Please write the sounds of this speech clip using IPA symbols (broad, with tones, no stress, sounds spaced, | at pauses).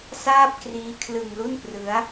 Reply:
s aː˥˩ p̚ k r iː˦˥ kʰ l ɯ˧ ŋ l u˥˩ n p r ɯ˦˥ a̯